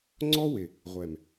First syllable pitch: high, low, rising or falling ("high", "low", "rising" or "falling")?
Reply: high